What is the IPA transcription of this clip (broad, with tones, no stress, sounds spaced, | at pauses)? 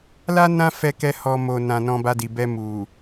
l a˦ n ã˦ f ɛ˧ k ɛ˧ h ɔ˧ m o˨ n ã˨ n ɔ̃˧ b a˧ d i˨ b ɛ˧ m u˨